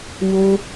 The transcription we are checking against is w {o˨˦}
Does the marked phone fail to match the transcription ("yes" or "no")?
yes